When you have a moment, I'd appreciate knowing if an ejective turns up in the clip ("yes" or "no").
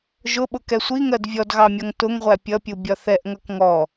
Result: no